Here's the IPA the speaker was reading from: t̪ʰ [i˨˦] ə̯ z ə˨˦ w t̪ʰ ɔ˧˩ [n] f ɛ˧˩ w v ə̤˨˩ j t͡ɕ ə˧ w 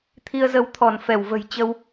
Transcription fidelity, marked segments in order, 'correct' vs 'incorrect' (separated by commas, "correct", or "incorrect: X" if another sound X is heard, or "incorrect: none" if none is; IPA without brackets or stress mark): incorrect: i˧, correct